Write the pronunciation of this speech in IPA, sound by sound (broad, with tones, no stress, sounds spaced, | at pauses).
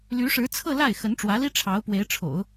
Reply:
l y˧˥ ʂ ɻ̩˧˥ t͡sʰ ɤ˥˧ l a˥˩ ɪ̯ x ə˧˥ n ʈ͡ʂ w ä˧˥ l i˥ ʈ͡ʂʰ ɑ˧˥ ʊ̯ p w e˧˥ ɪ̯ ʈ͡ʂʰ o̰˨˩˦ ʊ̯